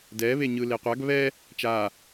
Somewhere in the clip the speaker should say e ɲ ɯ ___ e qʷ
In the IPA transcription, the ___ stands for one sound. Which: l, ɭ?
l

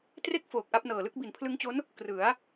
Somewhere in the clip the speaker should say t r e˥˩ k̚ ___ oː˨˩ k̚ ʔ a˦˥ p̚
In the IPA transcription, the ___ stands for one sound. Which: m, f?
f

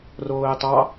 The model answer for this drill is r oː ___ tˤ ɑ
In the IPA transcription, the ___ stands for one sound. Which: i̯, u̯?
i̯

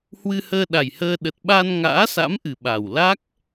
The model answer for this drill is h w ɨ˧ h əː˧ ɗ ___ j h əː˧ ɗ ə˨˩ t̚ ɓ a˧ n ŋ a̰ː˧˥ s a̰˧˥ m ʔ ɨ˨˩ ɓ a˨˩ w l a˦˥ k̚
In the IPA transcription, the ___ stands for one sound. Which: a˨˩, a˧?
a˨˩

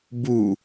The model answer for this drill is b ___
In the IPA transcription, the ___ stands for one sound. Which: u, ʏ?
u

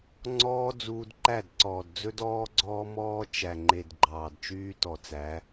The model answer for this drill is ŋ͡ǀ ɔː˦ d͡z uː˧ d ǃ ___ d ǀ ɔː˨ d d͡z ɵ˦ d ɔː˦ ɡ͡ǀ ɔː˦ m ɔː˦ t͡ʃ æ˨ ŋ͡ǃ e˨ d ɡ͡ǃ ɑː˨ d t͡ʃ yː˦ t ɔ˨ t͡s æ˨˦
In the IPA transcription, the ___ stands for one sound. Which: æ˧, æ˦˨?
æ˦˨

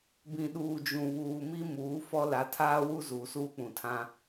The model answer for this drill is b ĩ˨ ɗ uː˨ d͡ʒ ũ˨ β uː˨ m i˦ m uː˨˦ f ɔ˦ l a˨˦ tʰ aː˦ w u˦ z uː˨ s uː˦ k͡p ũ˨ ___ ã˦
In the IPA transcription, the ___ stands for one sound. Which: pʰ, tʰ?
tʰ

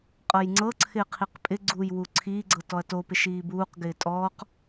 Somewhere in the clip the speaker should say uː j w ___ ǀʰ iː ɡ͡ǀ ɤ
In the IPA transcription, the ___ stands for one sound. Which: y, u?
u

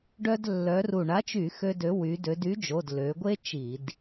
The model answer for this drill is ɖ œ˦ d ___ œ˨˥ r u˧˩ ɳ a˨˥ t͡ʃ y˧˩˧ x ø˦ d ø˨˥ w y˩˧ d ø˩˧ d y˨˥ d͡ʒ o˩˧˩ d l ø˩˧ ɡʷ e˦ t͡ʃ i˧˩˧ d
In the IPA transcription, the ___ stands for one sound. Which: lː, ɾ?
lː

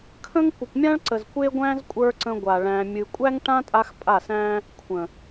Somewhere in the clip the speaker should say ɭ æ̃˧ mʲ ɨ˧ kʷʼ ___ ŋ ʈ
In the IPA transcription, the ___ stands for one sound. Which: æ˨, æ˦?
æ˦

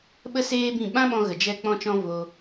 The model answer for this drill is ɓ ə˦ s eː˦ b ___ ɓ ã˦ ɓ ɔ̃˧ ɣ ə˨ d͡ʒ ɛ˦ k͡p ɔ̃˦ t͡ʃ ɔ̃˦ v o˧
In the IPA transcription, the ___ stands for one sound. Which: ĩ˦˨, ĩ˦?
ĩ˦˨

